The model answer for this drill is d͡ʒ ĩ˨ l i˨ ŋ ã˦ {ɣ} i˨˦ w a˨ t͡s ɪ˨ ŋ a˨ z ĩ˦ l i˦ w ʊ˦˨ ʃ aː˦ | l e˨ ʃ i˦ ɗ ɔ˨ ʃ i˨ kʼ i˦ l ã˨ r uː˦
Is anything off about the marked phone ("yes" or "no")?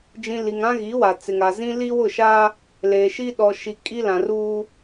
no